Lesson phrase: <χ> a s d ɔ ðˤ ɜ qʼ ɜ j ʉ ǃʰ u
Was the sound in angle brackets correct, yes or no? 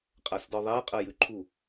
no